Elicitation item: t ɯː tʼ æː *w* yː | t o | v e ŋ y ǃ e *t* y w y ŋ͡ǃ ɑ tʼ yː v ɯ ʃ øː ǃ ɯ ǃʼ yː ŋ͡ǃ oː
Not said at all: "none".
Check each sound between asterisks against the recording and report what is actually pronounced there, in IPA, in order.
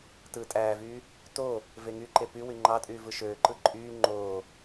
v, p

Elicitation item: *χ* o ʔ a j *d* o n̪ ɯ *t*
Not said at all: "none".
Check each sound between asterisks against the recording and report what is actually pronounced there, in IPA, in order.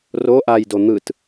r, d, t

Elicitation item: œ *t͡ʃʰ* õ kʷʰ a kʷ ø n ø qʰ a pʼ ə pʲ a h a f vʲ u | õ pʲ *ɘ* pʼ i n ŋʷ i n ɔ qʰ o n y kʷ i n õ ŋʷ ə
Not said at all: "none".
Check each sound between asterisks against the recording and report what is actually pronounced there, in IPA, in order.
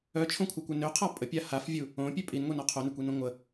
t͡ʃʰ, ø

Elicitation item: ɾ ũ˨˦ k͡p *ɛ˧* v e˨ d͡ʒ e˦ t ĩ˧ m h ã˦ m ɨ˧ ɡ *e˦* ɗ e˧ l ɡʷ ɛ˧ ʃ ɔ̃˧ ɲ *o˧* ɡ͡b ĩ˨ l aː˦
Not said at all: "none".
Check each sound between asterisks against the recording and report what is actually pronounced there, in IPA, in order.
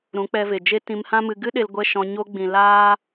ɛ˧, ɨ˦, o˧

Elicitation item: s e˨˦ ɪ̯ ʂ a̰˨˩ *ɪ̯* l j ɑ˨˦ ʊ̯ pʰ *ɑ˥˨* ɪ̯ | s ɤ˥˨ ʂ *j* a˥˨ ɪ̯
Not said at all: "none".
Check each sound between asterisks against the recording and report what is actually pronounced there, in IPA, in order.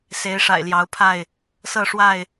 ɪ̯, a˥˨, w

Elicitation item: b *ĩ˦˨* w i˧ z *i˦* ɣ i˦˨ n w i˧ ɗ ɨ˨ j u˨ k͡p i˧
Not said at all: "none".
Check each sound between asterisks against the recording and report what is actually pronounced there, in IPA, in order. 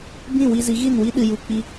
ĩ˦˨, i˨˦

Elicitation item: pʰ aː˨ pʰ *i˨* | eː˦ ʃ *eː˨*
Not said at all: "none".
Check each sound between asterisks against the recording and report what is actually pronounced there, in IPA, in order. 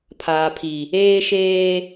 i˨, eː˦

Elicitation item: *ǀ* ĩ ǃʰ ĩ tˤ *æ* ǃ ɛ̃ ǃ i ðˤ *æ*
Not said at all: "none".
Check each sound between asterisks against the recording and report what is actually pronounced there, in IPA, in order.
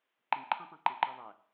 ǃ, æ̃, æ

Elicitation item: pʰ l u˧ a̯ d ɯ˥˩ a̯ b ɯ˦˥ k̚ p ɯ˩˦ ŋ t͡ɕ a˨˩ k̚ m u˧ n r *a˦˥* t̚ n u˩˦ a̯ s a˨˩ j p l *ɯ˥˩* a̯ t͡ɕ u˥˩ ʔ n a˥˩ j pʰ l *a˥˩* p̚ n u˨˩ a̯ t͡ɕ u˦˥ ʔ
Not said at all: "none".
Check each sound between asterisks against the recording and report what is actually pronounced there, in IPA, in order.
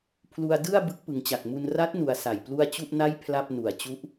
a˦˥, u˥˩, a˥˩

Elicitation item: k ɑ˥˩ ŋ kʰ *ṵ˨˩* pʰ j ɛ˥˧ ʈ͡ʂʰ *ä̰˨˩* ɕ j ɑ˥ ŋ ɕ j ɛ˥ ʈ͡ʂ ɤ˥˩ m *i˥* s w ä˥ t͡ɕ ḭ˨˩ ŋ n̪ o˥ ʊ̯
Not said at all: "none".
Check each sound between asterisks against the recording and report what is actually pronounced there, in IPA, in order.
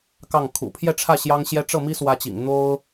ṵ˨˩, ä˥˩, i˥

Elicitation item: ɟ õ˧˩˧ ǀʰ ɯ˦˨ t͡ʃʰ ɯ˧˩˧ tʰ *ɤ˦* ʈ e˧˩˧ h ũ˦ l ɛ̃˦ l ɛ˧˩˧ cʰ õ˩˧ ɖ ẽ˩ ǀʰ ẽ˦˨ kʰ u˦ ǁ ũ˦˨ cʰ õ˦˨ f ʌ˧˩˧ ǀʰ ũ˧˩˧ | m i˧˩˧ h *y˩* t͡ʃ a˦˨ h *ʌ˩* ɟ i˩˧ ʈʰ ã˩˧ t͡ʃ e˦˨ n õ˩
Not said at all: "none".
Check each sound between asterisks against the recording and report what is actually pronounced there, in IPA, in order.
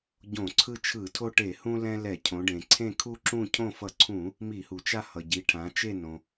o˦, u˩, ʌ˩

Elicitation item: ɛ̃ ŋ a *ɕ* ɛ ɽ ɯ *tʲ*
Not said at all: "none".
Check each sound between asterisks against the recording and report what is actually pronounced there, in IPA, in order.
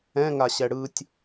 ɕ, tʲ

